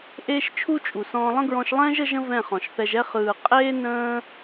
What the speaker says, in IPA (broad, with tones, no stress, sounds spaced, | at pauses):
ʔ eː˦ ʃ t͡ʃʰ u˦ t͡ʃʼ u˨ s ɔ̃ː˧ lˠ ə̃˦ ɡ ɹ ɔ̃˧ ʃ lˠ ɛ̃ː˦ ʒ ə˦ ʒ ə̃˦ v ɛ̃˦˨ χ ɔ̃˨ ʃ θ ɛ˧ ʒ ɛ˦ χ ɯː˨ qʼ eː˦ n ə̃ː˦